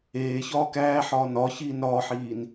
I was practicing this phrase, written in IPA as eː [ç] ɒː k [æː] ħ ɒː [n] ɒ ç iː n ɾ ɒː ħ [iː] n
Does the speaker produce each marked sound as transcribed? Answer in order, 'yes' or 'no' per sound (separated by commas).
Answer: yes, yes, yes, yes